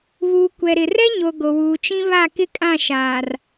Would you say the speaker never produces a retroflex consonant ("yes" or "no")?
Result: yes